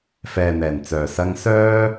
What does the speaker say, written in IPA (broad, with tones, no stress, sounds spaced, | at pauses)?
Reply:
f ɛː˨ n̪ ɛː˨˩ n t͡s œː˨˩ s ɐ˧ ŋ s œː˧